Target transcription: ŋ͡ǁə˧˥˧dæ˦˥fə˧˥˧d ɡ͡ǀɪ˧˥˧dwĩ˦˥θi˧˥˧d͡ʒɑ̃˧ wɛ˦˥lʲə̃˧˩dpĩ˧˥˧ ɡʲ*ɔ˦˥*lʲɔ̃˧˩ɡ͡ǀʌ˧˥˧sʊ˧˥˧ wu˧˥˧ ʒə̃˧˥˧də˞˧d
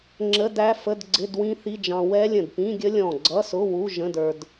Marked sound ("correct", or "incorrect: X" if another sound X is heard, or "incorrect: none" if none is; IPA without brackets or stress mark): incorrect: ə˦˥